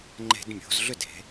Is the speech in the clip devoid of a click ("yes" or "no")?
no